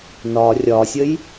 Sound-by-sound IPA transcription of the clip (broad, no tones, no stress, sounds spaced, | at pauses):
n ɒ rʲ ɒ sʲ ə j